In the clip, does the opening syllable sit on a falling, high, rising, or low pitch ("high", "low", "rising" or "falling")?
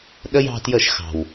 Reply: high